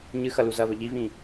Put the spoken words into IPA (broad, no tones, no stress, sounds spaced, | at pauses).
ɲ ɨ x ɐ l u z ɐ β ɵ ʎ i v ĩ